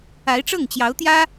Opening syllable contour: rising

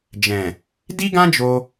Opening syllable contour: low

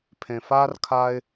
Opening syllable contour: low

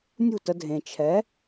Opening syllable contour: falling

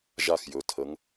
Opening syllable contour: falling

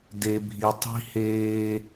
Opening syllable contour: high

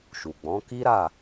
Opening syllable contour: low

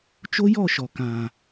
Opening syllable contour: high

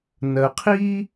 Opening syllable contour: low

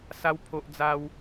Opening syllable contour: high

